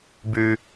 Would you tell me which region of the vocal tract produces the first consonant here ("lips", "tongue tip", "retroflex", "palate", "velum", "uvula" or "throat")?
lips